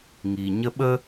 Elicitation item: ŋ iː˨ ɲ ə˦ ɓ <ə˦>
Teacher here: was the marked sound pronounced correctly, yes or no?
yes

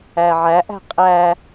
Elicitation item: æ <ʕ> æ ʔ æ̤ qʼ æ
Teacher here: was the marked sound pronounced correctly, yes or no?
yes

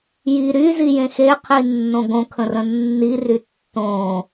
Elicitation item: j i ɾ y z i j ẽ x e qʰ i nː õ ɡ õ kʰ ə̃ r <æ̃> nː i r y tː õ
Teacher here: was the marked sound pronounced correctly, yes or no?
no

